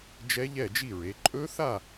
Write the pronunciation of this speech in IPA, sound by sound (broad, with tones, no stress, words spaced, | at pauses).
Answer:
d͡ʒɛ˦˥ʎɛ˥˨d͡ʒi˥˨ɹe˩˧ ǃʼɵ˦˥θa˥˨